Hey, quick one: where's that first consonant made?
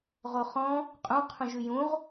uvula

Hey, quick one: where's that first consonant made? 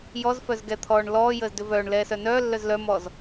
palate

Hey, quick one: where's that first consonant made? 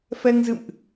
lips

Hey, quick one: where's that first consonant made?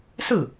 tongue tip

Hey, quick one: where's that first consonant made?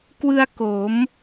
velum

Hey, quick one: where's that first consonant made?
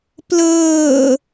lips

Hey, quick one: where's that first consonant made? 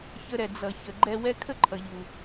palate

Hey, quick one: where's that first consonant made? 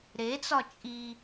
tongue tip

